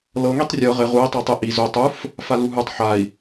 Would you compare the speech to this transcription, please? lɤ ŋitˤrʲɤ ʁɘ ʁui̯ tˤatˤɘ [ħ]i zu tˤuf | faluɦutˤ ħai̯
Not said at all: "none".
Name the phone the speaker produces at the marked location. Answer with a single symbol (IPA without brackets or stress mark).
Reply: ʔ